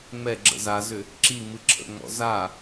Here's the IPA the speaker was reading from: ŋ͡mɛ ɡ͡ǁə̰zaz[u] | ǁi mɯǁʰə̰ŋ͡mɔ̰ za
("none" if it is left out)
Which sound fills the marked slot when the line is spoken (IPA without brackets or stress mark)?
ʏ